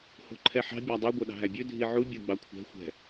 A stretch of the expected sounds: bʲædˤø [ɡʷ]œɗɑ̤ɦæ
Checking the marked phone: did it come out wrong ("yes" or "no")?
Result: no